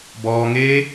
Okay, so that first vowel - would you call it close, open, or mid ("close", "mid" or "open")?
mid